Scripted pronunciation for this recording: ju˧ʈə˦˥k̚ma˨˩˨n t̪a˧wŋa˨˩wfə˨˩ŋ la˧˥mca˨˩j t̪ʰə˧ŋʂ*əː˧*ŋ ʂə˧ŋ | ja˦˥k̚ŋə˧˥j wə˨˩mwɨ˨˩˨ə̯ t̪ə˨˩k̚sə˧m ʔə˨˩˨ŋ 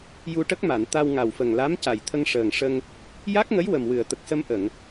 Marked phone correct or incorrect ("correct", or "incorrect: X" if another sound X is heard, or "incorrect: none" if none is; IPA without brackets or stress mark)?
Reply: incorrect: əː˨˩